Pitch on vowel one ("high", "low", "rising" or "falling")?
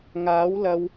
rising